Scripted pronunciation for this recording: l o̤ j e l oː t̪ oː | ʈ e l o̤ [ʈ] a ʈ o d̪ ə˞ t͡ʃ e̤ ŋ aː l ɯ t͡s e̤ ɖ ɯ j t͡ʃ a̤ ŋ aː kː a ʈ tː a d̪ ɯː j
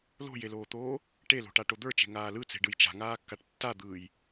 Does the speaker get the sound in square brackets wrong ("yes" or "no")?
no